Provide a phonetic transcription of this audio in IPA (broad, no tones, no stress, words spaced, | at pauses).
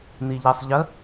n̪iʎesˤʎə